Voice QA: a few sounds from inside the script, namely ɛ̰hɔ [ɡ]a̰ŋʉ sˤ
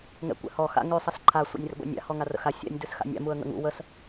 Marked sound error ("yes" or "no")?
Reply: yes